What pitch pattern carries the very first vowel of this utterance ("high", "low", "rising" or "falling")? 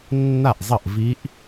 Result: falling